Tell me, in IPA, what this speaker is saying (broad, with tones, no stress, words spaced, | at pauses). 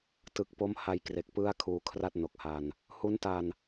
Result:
tɯ˨˩k̚po˦˥m ha˧jkre˨˩k̚ pɯ˦˥a̯ kʰuː˧kʰra˥˩t̚ no˨˩k̚ha˧n | hu˦˥nta˧n